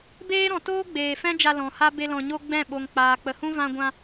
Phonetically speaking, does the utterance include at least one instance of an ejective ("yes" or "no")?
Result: no